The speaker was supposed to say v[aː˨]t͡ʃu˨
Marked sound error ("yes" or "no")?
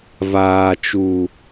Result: no